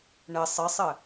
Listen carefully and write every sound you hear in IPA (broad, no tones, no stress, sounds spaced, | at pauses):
ɳ ɘ sˤ ɘ sˤ ɘ